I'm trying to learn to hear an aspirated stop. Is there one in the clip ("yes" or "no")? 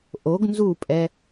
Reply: no